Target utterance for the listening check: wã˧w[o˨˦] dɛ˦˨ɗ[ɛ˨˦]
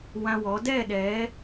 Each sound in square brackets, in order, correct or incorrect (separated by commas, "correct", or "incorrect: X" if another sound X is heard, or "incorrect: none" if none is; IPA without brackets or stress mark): incorrect: ɔ˨˦, correct